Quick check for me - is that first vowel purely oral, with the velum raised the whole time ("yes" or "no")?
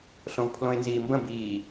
no